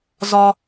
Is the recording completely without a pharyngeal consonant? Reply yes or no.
yes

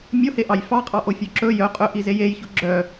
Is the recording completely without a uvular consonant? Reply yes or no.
no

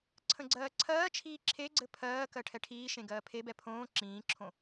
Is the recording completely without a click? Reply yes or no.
no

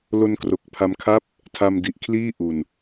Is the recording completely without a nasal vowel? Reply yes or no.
yes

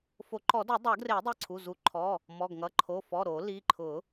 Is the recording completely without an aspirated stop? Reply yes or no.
no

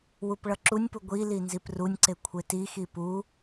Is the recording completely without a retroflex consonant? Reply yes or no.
no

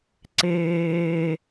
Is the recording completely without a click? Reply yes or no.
no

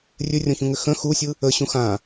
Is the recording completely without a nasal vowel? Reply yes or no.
no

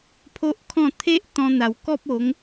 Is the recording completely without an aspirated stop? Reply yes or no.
no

